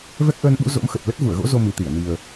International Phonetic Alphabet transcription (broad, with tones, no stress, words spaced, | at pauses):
vɛ˦˥k̚ʔəː˧nɓṵ˧˥ zo̰˧˥mxə˨˩t̚ lə˦˥t̚vu˧˩ə̯ɣo̰˧˥ zo˧mi˨˩t̪i˧˩ə̯ ni˨˩ə̯